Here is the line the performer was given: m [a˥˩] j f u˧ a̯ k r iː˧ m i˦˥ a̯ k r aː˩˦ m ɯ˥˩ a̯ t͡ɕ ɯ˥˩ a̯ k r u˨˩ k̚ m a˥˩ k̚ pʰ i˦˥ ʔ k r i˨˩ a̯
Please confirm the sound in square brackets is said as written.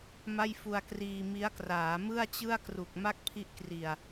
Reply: yes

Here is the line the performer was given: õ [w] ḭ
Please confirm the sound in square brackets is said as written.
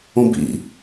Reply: no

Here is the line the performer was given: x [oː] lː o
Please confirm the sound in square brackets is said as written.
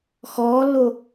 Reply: no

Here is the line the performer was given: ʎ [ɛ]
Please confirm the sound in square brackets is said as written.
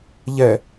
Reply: yes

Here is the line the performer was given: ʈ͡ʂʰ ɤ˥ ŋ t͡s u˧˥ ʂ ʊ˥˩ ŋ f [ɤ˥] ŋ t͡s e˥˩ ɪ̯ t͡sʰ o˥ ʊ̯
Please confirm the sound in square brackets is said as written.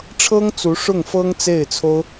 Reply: yes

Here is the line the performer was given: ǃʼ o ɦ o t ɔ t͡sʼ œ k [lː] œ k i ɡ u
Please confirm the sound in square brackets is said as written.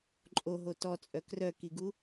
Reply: no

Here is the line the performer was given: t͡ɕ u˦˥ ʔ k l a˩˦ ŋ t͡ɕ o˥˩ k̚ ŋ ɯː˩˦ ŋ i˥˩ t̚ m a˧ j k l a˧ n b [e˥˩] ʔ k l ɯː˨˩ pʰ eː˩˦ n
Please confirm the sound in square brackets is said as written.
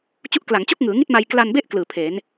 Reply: yes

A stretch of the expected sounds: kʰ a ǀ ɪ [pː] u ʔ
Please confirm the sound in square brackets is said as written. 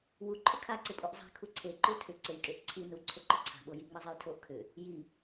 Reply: no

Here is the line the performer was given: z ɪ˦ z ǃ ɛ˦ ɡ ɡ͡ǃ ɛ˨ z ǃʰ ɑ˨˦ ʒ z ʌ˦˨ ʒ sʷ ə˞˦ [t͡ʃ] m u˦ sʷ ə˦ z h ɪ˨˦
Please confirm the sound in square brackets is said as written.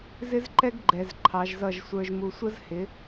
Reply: no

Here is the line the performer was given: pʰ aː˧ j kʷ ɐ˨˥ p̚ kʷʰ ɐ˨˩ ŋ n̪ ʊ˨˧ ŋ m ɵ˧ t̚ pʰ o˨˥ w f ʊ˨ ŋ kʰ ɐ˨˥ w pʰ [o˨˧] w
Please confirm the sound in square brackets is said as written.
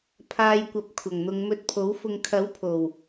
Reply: no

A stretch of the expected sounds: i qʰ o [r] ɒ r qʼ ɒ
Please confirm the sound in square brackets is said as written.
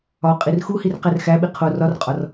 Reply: yes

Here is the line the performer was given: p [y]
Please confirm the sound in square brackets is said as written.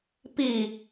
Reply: no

